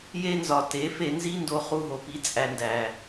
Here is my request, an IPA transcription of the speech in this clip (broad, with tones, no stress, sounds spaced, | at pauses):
j e˦ n z ɒ˨ t e˨˦ f e˧ n z i˦ n d o˦ χ u˦ ɦ o˨ p i˧ t͡sʼ æ˧ n d æ˨